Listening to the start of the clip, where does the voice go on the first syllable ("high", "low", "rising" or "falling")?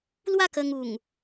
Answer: falling